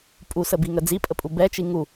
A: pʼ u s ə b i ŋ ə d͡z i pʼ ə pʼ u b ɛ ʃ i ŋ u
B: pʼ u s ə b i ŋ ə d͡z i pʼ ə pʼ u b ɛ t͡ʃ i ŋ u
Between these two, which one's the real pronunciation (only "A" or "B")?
B